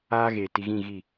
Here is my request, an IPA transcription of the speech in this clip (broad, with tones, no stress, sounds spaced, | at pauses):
aː˦ ɣ e˨ t i˨ ɣ ĩ˦˨ ɣ i˦˨